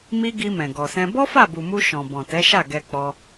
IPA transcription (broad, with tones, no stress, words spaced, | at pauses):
mi˧ ɡi˧ mɛ̃˨ɡɔ˨sɛ̃˧ bɔ˦ fa˦˨bu˨mu˧ ʃɔ̃˨bɔ̃˨tɛ˨˦ʃa˦˨ ɡɛ˧k͡pɔ˧